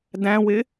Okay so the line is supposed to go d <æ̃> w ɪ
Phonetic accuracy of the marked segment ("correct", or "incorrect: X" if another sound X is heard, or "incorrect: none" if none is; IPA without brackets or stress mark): correct